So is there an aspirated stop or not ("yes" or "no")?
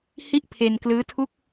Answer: yes